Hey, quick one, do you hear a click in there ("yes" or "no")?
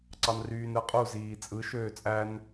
yes